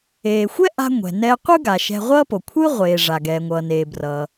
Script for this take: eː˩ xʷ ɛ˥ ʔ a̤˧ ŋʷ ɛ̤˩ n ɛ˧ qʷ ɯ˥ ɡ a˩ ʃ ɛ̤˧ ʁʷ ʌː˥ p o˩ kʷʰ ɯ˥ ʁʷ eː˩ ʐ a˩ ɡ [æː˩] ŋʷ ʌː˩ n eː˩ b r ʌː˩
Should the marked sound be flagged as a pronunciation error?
yes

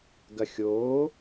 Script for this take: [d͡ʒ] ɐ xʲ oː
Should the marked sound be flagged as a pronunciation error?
yes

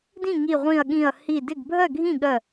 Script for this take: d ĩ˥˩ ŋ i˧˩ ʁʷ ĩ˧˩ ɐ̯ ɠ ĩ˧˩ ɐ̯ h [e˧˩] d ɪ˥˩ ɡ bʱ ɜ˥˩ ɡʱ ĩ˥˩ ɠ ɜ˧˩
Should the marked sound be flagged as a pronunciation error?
yes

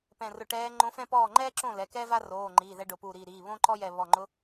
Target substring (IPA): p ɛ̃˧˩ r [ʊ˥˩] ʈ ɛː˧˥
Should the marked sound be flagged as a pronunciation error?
yes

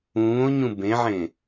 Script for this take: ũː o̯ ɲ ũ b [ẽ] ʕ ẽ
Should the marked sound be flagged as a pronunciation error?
no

